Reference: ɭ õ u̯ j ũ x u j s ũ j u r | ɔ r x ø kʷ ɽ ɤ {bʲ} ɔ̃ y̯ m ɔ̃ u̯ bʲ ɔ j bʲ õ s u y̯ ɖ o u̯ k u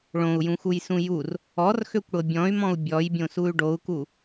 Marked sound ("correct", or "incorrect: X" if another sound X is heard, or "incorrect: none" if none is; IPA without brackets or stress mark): correct